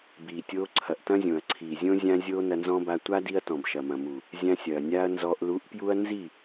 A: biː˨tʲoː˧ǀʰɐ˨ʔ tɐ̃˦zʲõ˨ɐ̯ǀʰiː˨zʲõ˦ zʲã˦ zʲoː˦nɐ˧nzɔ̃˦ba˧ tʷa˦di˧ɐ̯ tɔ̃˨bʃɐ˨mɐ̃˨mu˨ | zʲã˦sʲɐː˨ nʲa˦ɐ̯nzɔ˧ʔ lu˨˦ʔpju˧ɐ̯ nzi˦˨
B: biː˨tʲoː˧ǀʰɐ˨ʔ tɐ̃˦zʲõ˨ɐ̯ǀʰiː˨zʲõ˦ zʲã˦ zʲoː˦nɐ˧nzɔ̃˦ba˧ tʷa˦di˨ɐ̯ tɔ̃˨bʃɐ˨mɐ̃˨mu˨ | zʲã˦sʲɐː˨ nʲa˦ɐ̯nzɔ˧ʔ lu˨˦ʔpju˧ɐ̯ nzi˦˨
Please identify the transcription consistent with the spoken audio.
A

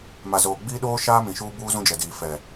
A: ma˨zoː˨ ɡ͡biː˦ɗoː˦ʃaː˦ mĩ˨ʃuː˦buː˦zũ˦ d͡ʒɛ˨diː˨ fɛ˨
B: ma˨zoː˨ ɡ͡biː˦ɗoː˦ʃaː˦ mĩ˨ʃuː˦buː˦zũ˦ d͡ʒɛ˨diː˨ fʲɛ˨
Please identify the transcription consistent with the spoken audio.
A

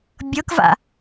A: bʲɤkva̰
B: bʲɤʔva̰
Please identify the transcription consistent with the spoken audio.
A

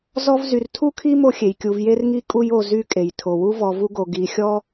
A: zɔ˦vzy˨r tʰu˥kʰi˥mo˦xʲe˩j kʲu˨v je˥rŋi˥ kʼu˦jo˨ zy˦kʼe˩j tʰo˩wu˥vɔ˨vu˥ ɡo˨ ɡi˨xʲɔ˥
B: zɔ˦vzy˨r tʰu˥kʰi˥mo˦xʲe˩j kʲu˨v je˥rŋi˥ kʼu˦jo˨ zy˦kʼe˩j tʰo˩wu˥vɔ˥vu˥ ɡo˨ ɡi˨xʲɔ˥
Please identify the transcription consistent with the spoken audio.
A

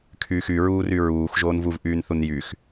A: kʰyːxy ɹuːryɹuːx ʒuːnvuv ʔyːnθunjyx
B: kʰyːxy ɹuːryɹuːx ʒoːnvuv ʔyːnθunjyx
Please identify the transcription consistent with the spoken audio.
B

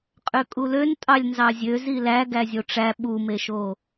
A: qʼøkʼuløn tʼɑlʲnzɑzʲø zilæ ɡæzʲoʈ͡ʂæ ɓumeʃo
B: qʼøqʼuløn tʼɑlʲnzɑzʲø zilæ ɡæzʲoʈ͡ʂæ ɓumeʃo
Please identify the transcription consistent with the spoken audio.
A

